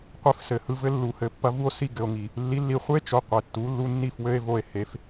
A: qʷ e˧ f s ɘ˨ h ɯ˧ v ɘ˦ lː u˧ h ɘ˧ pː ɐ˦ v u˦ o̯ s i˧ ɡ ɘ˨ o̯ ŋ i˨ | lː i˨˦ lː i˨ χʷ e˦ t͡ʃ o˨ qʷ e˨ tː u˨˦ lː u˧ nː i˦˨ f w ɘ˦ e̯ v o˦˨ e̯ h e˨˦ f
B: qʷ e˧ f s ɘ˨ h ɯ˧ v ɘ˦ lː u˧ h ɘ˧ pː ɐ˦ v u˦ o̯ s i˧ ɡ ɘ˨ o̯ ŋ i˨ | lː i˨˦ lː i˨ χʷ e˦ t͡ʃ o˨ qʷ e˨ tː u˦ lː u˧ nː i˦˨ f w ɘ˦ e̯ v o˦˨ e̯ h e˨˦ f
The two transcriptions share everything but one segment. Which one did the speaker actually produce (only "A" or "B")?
A